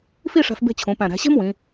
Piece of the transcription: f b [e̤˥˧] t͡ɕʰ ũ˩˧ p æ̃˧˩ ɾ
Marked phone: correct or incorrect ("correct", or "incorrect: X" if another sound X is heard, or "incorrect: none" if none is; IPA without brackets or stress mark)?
correct